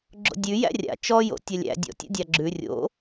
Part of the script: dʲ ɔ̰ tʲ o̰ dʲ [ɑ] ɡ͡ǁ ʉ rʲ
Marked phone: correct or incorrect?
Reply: correct